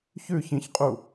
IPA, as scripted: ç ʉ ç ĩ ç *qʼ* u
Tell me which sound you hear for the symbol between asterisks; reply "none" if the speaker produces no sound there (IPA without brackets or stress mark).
qʼ